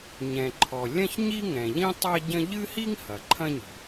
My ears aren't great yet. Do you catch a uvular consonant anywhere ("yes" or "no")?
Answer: no